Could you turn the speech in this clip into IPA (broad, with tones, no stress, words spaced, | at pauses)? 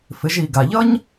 fɪ˩˧ʒi˩ɡa˩ʎʌ˥ɲ